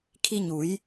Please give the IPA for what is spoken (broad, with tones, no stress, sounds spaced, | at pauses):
kʰ i˧ ɲ u˩˧ j